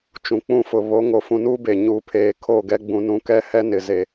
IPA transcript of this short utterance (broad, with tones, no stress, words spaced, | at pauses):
t͡ʃũ˨k͡pũ˦fʊ˨ βo˨˦ŋo˨ fũ˨nuː˦be˨ɲuː˨ pʰeː˨ kʰo˦˨ɡɛ˦ ɡ͡bũ˨nũ˨kɛ˦hɛ˦ nɪ˨ze˨